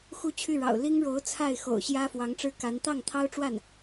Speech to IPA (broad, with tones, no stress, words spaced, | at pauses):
xu˥˧t͡ɕʰy˥˩ɻɑ̰˨˩ʊ̯ li˥ŋɻo˧˥ʊ̯ t͡sʰa˥˩ɪ̯xo̰˨˩ʊ̯ɕjä˥ fwɑ˧˥ŋʈ͡ʂɻ̩˥ka˧˥n t̪ɑ˥˩ŋt̪ʰɑ˥ʊ̯ʈ͡ʂwa˥˩n